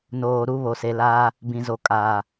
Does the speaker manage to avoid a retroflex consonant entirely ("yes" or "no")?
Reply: yes